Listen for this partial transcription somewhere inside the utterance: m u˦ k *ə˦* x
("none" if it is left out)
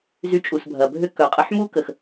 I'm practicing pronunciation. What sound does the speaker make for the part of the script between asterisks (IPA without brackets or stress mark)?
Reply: ə˨